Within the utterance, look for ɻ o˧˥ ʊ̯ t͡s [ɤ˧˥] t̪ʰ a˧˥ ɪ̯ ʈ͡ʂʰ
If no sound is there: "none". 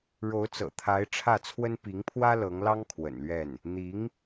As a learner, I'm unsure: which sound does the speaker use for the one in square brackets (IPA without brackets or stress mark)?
ɤ̰˨˩